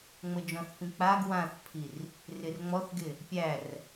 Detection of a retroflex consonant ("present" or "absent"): absent